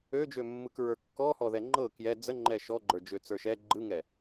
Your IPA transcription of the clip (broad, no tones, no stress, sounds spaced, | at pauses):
ø d͡ʒ ø mː ɯ k ɹ ə˞ kː ɔ h ɔ ð ɛ ŋ͡ǃ ɤ k j ɛ d͡z ə ŋ͡ǃ ɛ ʃ ɔ ɡ͡ǃ ə˞ d͡ʒ ø t͡s ə˞ ʃ ɛ ɡ͡ǃ ɯ ŋ ɛ